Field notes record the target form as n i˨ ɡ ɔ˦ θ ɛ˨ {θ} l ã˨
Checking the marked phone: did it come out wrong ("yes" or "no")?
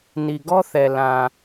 yes